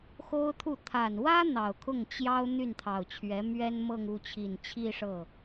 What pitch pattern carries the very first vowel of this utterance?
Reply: high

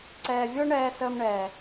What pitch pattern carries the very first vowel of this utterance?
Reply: low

